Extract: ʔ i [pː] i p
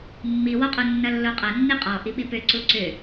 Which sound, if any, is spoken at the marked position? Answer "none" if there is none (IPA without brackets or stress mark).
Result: ɓ